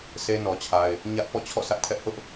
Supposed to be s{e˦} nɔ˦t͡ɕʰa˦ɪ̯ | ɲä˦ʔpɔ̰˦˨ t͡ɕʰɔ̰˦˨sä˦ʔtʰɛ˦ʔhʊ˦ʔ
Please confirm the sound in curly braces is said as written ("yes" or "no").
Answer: yes